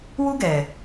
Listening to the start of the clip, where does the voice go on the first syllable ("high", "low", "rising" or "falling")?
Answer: high